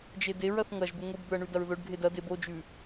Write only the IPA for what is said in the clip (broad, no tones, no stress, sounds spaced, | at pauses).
d͡ʒ e d e ɹ ɐ θ ŋ ɐ ʒ b ɨ ŋʷ i b d̪ ɵ ɐ̯ ɳ ʉ d ɐ ɹ ð ɵ ɖ ɡʱ e d ɐ d e b o d͡ʒ ʉ